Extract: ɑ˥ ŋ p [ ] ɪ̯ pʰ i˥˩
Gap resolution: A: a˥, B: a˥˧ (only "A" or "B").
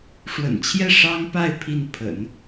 B